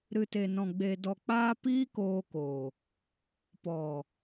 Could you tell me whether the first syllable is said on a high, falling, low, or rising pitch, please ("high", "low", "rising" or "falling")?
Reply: low